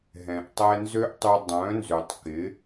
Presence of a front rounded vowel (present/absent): present